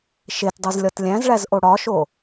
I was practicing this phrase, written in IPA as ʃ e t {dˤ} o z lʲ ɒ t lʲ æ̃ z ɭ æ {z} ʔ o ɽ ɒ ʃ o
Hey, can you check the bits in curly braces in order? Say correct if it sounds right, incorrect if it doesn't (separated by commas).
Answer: correct, correct